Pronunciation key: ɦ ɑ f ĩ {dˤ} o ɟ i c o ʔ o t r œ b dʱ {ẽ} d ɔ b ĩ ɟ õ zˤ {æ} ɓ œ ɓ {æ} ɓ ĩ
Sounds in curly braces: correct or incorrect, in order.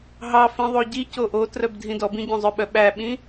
incorrect, incorrect, incorrect, correct

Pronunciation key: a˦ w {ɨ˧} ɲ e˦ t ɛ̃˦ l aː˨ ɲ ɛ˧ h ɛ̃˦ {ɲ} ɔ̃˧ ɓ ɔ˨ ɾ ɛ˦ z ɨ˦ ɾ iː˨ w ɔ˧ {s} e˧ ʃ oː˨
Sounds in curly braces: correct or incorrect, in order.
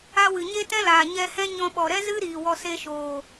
incorrect, correct, correct

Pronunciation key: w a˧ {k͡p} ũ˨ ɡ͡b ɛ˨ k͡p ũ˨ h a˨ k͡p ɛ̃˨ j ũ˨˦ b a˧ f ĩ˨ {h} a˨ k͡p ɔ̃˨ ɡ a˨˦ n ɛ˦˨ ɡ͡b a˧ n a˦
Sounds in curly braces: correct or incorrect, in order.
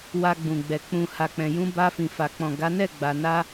incorrect, incorrect

